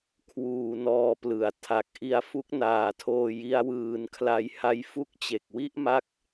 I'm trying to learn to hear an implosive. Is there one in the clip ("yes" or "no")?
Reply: no